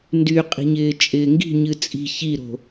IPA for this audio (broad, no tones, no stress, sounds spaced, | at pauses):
n d y qʼ i̤ ɲ ɪː t͡ʃʼ ɪː ŋ ɡ i̤ ɲ ɨ t͡sʼ i̤ ç i ɾ o̤